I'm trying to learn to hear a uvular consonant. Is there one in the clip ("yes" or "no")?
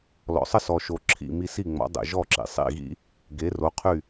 yes